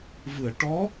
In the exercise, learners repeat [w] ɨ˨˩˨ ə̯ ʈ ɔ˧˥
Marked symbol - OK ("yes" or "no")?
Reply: no